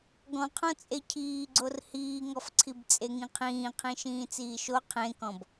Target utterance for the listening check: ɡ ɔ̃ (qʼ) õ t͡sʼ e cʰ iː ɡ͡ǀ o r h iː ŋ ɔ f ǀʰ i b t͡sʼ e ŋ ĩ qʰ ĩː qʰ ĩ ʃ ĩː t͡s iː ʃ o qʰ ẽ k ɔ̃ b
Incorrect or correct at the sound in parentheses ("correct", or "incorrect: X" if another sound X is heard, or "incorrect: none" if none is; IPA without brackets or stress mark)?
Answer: incorrect: qʰ